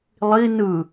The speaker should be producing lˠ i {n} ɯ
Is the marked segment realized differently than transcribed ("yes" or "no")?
no